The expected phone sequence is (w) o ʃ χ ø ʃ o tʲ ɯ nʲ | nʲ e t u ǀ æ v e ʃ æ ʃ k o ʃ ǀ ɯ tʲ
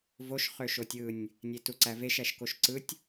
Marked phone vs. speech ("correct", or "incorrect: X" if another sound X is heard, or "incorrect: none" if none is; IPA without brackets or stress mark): incorrect: v